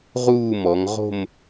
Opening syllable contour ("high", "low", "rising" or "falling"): falling